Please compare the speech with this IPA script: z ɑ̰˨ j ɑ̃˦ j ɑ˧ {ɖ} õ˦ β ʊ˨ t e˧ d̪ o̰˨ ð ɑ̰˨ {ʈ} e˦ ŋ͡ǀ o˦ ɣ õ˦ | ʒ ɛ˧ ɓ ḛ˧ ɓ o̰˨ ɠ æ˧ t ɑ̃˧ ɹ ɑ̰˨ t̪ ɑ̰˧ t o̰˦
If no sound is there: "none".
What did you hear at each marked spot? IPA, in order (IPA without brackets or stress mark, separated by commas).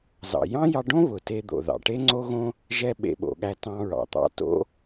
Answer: ɖ, ʈ